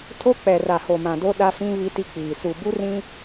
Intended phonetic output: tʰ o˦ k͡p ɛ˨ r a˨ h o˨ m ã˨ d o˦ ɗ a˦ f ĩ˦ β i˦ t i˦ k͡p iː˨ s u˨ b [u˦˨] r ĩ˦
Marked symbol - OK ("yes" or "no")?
no